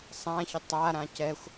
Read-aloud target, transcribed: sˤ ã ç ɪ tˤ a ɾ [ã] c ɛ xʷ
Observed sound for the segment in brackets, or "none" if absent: ã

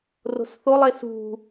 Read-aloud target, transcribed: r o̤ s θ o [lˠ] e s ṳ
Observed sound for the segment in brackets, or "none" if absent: lˠ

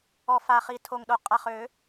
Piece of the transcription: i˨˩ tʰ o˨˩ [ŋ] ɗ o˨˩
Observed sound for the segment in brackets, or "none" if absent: ŋ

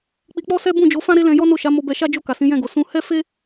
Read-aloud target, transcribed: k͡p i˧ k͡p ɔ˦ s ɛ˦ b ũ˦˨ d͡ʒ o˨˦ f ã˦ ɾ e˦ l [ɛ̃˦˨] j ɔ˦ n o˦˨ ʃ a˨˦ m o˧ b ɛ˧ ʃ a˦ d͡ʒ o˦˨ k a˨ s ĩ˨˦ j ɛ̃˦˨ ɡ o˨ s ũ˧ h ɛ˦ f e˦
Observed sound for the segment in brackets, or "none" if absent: ɛ̃˧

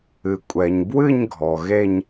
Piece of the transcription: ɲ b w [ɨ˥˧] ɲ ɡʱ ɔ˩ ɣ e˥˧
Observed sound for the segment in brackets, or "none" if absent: ɨ˥˧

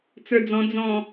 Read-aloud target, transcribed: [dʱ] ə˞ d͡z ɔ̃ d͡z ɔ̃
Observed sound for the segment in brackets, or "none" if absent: t͡s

